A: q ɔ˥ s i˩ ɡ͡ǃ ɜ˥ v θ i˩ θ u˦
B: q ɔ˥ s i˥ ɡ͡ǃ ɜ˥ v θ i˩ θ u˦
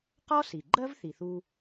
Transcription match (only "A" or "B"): A